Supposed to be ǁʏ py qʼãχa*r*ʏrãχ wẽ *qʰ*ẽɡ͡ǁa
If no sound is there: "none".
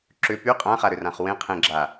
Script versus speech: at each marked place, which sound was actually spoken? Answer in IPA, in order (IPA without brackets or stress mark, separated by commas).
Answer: ɾ, qʰ